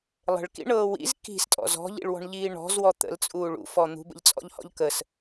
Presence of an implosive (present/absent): absent